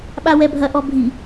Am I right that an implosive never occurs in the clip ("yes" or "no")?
no